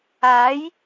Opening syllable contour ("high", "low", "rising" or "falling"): rising